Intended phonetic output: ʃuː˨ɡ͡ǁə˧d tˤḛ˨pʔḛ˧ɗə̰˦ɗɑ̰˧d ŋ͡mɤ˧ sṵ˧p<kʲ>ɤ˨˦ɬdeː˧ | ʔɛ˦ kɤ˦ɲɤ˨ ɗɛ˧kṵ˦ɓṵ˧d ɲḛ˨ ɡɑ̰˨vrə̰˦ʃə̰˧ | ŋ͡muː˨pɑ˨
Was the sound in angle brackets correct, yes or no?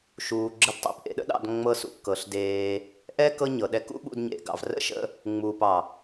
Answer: no